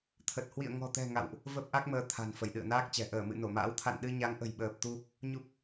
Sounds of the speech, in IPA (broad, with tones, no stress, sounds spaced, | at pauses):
t̪ʰ ə˨˩ t̚ h w ḭ˧˨ ə̯ ŋ ɔ̤˨˩ t̪ ɛ̤˨˩ ŋ a̰˧˨ w ʔ | v ə˦˥ p̚ ʔ a˦˥ k̚ m əː˧ t̪ʰ a̤˨˩ n f ə˧˩ j ɗ ɨ̰˧˨ ə̯ n aː˦˥ k̚ t͡ɕ ɛ̤˨˩ ʔ əː˧˩ m ɨ̰˧˨ n o˧˩ m a̰ː˧˥ w t̪ʰ a̰˧˨ n ɗ ɨ˧ ɲ a˨˦ ŋ ʔ ə̤˨˩ j ɓ əː˨˩ p̚ t̪ u˧ | ɲ u˦˥ p̚